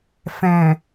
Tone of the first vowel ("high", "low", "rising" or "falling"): low